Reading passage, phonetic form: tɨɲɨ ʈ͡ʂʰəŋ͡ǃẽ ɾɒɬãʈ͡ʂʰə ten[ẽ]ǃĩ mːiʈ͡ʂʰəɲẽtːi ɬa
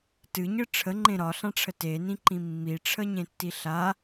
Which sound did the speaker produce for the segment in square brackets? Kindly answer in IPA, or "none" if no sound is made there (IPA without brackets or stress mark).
ĩ